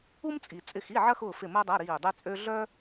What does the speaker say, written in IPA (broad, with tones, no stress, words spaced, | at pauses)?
u˥mt͡sʼi˨ t͡sʼɪ˦˨xi˧˥˧ʕɐ˥xʊː˦˨ fɪ˦˨məː˥dˤɐ˧˥˧ ɾiː˦˨dˤy˥t͡sʼø˥ ɮœ˥